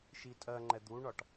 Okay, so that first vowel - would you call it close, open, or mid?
close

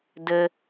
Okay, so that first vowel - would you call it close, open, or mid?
mid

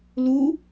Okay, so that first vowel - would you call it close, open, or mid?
close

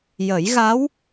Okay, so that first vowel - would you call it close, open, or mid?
mid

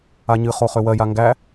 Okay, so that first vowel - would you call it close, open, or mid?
open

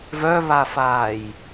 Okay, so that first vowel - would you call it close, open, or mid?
mid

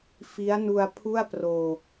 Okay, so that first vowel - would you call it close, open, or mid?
close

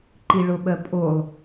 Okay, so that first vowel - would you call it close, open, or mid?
close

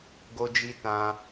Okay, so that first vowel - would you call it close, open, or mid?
mid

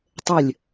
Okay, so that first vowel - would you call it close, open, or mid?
mid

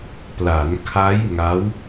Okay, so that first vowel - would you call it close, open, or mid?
open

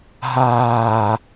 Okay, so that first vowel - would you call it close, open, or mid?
open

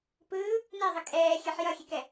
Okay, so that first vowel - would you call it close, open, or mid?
close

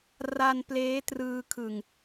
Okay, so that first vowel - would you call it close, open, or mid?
open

